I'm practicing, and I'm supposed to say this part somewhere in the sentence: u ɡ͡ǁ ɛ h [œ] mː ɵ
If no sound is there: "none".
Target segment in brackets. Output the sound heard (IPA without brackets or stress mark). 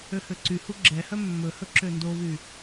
œ